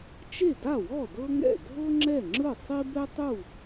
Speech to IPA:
t͡ʃ e˥˩ d a˥˩ w ɔ˥˩ d ɤ˥ ŋ ɛ̰˥˩ dʱ ɤ˥ ŋ͡ǁ ɛ˥˩ ŋ͡ǁ ɯ˥˩ sˤ i˥ b ɛ˥ tˤ u˥˩

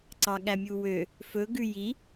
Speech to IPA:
ǀ ɑ ɠ æ mʲ u w ø | f ɵ ɡ ʉ j i

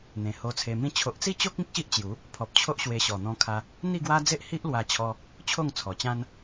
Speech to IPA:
n̪ ẽ˨˩ h o˧ t͡sʰ e˧ m ĩ˦ t͡ɕʰ o˨ ʔ t͡s i˥˧ t͡ɕ o˦ k̚ ĩ˦ k̚ ɕ i˦ ʔ t͡ɕ j u˨˦ | pʰ ɔ˨ p̚ t͡ɕʰ o˦ ʔ ɕ w e˧ ɕ ɔ˨˩ n̪ ɔ̃˧ kʰ a˧ | n̪ i˥˧ ɡ w a˦ d͡z e˦ ʔ h i˦ ʔ l w a˧ t͡ɕʰ ɔ˧ | t͡ɕʰ o˥˧ ŋ t͡sʰ ɔ˨˩ t͡ɕ ã˦ n

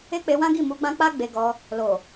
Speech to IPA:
e˦ k͡p e˧ w ã˦ ɡ i˦˨ m u˧ ɡ͡b ã˦ k͡p a˦ ɡ͡b e˧ ɡ ɔ˧ | l o˨

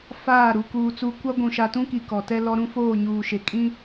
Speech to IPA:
f aː˦˨ ɾ u˨ k uː˨ t͡s u˦ kʷ a˦ ɡʷ ũ˨ ʃ a˨ t ũ˦ k i˨ k ɔ˨ t ɛ˦ l ɔ˦ ɾ ũ˦ f oː˦˨ ɲ uː˨ ʃ e˨ kʼ ĩ˦

